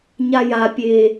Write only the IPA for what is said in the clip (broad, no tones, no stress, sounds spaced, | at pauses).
ɲ a j a pʲ e